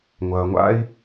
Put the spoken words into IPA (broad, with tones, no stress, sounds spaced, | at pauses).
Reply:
ŋʷ ɐː˩ ŋʷ a̰˥ i̯